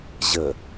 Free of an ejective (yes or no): yes